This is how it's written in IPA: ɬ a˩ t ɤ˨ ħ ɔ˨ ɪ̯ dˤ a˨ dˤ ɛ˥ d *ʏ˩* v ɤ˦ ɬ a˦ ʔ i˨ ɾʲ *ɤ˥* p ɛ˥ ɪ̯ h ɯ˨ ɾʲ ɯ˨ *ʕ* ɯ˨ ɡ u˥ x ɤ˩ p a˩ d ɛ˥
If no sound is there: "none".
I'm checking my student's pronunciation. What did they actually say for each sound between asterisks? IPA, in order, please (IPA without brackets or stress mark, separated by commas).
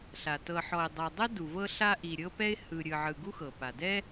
u˩, ɤ˥, ʕ